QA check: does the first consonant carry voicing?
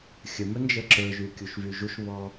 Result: no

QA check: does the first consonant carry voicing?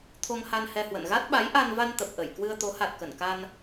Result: no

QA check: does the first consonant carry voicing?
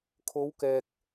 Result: no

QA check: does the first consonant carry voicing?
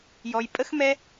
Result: yes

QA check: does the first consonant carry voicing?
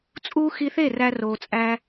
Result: no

